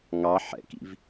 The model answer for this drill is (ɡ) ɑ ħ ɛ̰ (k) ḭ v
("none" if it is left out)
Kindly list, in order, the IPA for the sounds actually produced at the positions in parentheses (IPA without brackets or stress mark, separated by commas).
ŋ, k